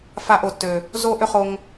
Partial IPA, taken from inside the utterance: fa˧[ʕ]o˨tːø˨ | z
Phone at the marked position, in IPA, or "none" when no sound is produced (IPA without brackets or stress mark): ʔ